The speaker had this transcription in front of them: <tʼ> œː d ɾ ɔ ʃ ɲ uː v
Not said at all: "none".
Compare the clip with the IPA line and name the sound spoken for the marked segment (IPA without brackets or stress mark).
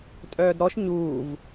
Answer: tʼ